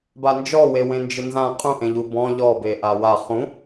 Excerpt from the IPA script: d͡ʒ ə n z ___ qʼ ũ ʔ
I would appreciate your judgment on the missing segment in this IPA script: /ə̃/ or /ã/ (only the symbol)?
ã